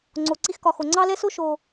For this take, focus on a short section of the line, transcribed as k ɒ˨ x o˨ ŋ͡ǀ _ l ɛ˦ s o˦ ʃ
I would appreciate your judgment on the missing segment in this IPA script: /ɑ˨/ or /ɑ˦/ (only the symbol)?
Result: ɑ˦